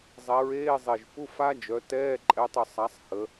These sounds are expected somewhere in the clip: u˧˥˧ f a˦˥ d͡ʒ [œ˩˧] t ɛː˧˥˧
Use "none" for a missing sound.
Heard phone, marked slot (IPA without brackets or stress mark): œ˩˧